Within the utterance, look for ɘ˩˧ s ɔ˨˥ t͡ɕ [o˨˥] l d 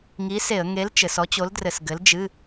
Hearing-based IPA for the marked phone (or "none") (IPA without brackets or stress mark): o˨˥